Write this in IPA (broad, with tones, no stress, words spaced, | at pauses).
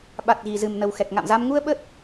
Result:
ɓa˨˩t̚ɣi˨˩ zɨ˨˩mnə˨˩w xɛ˨˩k̚ŋa̰˧˨mza˧m ŋu˧ə̯ ɓə˦˥t̚